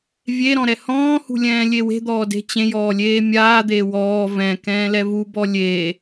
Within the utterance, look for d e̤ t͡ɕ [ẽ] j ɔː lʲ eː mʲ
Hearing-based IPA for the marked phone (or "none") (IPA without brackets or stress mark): ẽ